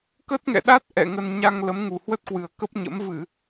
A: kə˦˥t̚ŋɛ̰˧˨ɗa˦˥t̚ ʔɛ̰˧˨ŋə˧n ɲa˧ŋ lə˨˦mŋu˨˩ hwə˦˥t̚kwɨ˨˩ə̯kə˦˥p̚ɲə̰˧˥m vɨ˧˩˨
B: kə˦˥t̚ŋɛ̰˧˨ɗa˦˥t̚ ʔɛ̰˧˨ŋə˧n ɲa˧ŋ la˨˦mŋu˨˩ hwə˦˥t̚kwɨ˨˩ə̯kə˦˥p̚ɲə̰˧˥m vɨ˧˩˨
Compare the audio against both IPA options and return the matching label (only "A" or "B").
A